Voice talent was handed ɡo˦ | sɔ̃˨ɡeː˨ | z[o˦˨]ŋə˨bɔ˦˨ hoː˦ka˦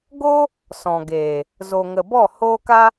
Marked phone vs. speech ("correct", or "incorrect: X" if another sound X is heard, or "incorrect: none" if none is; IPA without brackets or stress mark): incorrect: o˨